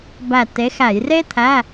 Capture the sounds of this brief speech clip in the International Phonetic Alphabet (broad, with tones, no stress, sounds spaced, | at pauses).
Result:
b æ˧˩ t e˨˥ x æ˧˩˧ j r e˥ t̪ʰ æ˧˥˧